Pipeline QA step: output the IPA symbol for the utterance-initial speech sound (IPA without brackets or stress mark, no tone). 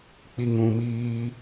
k͡p